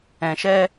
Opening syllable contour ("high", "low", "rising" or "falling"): low